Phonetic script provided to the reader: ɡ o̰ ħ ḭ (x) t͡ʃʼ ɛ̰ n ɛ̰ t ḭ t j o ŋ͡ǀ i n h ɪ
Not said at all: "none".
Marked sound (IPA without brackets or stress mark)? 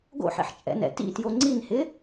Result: ħ